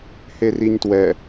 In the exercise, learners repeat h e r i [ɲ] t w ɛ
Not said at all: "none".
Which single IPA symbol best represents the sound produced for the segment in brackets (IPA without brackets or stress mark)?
ɲ